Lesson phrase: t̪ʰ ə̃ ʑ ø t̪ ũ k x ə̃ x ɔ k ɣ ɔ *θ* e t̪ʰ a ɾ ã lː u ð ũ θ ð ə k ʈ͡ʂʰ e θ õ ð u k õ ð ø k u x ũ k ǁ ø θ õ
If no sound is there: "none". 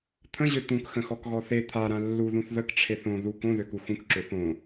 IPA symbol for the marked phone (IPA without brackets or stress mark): θ